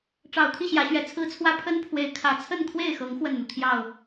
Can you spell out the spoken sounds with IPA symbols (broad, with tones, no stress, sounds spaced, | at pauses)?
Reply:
ʈ͡ʂ ɑ˨˩ ʊ̯ t̪ʰ i˥˨ ɕ j ä˨˦ ɕ ɥ ɛ˨˩ t͡sʰ ɹ̩˦ t͡sʰ w ä˦ pʰ ə˦ n pʰ w e˨˦ ɪ̯ kʰ ä˨˩ t͡sʰ ə˥˨ n kʰ w e˥˨ ɪ̯ x ɤ˨˦ ŋ x w ə˥˨ n n̪ u˩ t̪ʰ j ɑ˥˨ ʊ̯